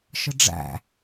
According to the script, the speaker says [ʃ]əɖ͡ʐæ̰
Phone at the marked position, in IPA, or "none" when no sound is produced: ʃ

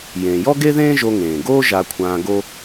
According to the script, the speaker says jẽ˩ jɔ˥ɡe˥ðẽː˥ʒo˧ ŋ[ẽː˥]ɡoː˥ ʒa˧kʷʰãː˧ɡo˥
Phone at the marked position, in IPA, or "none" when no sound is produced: ẽː˩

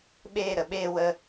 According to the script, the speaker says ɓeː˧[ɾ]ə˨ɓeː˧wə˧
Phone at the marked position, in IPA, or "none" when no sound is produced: ɾ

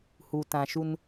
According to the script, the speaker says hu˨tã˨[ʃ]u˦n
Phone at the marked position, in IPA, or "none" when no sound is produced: ʃ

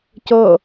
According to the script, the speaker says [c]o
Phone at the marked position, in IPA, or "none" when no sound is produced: c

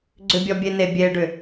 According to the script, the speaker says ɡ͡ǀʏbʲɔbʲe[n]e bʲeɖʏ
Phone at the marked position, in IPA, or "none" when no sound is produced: n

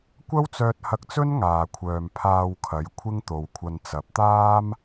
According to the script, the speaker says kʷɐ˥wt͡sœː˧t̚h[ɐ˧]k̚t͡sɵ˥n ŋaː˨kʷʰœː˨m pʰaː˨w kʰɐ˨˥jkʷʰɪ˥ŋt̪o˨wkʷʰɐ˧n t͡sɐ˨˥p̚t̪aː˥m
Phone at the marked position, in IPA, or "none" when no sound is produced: ɐ˧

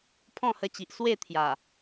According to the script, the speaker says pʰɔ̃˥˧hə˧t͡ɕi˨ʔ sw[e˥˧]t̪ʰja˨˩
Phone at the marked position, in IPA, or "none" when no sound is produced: e˥˧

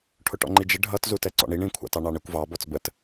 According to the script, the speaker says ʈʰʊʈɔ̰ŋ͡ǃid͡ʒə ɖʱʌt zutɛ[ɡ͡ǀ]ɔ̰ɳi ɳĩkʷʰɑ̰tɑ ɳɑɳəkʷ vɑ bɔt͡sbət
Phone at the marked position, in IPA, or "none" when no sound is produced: ǀ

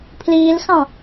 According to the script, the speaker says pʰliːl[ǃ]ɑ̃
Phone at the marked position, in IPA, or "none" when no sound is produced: x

